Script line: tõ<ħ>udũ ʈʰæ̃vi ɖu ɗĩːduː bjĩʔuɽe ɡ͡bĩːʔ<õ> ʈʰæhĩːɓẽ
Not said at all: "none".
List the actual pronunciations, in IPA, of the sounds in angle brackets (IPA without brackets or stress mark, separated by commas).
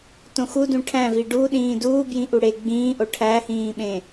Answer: x, o